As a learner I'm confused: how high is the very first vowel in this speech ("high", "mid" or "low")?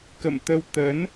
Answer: mid